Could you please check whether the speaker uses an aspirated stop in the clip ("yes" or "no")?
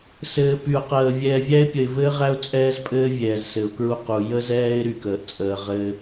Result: no